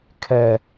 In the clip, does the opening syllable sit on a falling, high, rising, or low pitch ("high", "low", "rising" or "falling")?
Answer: high